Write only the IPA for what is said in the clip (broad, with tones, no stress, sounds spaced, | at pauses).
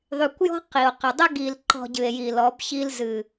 ðˤ y˨ kʷ j ɔ̤˦ q i˨ o̯ q ə˨ dˤ ə˦ ɡ i˨ l ǃ ɔ̤˨ ɟ ɨ˨ e̯ j i˨ l ɔ˨˦ b ç i˦ l z ɨ˨